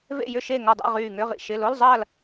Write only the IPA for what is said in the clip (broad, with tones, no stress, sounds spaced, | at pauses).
v ḛ˥˨ j ʏ˥˨ ʃ e˥˨ ŋ ɔ˧˩ dˤ a̰˥˨ ʁ yː˧˩ ŋ ʏ˧˥˧ ʁ ḭ˧˩ ʃ ɪ˧˥˧ l o˧˥˧ l zˤ ɐː˥˨ l